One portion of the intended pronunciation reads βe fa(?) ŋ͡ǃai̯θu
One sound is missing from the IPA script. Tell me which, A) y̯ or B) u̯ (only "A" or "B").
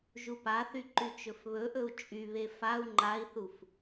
B